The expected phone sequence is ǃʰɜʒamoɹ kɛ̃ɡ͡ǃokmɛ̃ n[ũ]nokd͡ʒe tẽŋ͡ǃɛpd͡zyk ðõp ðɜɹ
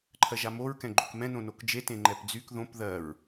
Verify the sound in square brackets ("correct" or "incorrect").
incorrect